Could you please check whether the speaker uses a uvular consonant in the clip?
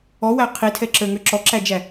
yes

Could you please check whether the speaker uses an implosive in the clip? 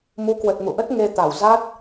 no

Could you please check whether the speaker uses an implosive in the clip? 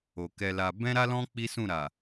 no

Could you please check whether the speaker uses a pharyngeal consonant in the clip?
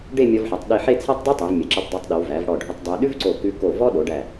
yes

